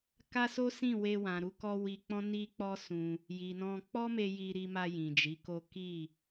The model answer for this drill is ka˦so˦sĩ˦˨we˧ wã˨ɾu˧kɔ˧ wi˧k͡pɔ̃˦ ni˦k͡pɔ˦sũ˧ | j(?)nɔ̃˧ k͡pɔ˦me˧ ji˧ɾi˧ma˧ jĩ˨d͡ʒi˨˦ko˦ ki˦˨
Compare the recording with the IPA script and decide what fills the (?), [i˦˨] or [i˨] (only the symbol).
i˨